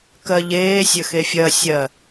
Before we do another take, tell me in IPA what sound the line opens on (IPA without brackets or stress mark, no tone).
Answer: k